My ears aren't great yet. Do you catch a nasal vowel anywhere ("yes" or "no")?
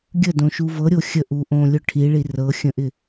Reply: yes